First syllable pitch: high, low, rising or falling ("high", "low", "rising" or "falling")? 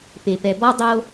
low